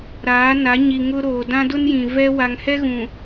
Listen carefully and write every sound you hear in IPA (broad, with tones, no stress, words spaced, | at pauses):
ɾaː˨˦na˨˦ ɲi˨ ŋʊ˦ ɾoː˨dã˦dʊ˦njĩ˨ vɛ˦ wa˨ŋhɛ˦ɣũ˨